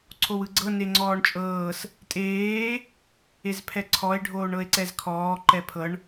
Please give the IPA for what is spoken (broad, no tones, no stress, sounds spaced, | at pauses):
ǀʰ o w ɯ ɡ͡ǀ ɤ n e ŋ͡ǀ ɔː ɳ t͡ʃʼ ɤː s | tʼ eː | e z pʰ ɛ ǀʰ ɔ e̯ ɖʱ oː ɳ ɤ e̯ ǀ ɛ z kʰ ɔː ǃ ɛ pʰ ɤ ɳ